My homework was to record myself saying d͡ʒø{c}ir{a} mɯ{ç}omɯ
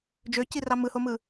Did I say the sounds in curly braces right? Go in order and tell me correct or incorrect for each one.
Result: correct, incorrect: ɑ, incorrect: h

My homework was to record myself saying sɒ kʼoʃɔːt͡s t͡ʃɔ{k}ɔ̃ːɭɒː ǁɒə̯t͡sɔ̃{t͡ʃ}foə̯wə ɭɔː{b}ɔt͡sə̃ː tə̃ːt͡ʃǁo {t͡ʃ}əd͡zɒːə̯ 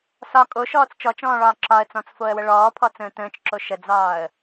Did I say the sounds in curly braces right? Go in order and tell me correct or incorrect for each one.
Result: incorrect: t͡ʃ, incorrect: t͡s, incorrect: pʰ, incorrect: ʃ

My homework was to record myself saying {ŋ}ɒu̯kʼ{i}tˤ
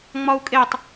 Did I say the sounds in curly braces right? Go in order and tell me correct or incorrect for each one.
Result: incorrect: ŋ͡m, incorrect: e

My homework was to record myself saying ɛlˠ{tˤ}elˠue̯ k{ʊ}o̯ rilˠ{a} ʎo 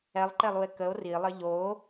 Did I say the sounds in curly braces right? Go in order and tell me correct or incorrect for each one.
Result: incorrect: ǃ, incorrect: ə, incorrect: ə

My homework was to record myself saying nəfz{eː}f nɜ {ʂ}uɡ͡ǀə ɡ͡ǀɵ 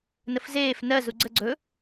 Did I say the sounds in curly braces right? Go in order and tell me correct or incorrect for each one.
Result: correct, incorrect: z

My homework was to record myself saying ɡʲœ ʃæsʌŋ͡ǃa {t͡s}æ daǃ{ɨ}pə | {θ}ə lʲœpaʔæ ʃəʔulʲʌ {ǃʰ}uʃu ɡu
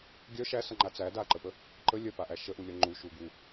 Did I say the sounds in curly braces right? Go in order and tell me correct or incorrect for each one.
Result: correct, incorrect: ə, incorrect: ǃ, incorrect: ŋ͡ǃ

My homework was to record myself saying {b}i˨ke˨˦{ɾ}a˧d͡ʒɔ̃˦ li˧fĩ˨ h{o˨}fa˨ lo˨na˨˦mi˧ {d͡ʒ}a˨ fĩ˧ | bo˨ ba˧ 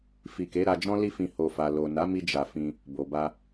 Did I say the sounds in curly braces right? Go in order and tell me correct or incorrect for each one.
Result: incorrect: f, correct, correct, correct

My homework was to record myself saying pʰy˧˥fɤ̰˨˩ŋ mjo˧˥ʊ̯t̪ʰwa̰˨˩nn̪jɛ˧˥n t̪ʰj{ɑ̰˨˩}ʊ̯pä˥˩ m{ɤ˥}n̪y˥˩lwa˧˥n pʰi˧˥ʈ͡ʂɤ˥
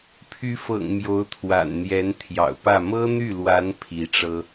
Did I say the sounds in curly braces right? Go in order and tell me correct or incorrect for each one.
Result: correct, correct

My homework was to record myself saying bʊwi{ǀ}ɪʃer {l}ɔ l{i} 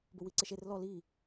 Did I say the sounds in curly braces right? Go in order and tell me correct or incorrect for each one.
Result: correct, correct, correct

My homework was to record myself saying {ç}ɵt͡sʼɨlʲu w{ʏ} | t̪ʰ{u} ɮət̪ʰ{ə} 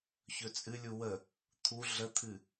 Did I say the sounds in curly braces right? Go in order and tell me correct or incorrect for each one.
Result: correct, incorrect: ə, correct, incorrect: ɨ

